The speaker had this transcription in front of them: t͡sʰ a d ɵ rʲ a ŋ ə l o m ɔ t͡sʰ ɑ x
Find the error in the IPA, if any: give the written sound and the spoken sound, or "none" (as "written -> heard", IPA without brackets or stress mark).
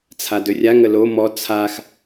ɑ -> a